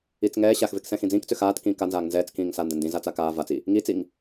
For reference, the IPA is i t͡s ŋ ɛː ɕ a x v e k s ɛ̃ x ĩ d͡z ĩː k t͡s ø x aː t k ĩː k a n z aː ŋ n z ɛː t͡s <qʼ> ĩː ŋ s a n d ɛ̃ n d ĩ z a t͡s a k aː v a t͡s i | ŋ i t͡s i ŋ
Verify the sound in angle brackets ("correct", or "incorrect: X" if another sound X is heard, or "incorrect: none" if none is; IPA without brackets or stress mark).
incorrect: k